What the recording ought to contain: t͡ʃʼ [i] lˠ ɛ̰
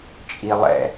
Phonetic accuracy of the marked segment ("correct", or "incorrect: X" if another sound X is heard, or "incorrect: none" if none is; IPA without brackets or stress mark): correct